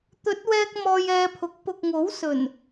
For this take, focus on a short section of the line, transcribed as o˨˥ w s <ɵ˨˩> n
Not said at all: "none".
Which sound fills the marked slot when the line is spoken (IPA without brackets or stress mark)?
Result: ɵ˨˩